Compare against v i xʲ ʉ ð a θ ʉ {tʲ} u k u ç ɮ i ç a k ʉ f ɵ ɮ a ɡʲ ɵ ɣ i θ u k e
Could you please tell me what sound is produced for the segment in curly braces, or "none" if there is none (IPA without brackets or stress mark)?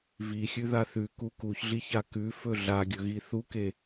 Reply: k